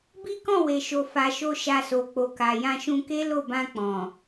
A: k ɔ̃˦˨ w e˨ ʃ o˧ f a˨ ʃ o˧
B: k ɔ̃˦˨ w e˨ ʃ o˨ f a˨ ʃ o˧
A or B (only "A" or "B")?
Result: B